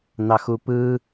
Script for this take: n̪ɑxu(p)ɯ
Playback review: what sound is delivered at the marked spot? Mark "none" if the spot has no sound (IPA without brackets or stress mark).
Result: p